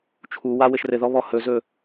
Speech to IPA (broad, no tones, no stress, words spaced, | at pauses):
t͡ʃʰu wawɘʃrɘðɔ βɔhɵzɵ